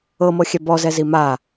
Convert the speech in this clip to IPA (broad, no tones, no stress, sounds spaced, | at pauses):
ɤ m ɤ xʲ ɛ b ɔ z ɛ z i m a